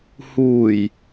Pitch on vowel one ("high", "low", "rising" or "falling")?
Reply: low